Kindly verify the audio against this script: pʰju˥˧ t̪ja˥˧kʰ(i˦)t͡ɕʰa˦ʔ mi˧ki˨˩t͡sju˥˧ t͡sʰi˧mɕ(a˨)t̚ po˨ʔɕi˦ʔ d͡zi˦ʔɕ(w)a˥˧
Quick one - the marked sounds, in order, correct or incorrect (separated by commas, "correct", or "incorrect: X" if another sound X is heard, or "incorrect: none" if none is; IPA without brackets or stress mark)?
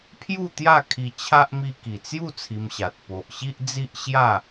incorrect: i˧, correct, incorrect: j